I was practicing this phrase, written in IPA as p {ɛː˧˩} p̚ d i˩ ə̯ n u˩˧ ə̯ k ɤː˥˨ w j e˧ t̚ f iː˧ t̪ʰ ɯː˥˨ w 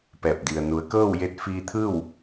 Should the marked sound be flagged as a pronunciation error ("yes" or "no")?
no